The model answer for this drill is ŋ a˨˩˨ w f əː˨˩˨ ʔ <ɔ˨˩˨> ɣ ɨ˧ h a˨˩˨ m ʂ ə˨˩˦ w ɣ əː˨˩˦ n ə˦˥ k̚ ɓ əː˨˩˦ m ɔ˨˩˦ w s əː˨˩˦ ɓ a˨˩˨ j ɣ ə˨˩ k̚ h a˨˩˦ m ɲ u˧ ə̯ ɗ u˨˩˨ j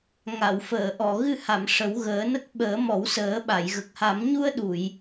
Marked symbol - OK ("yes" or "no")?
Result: yes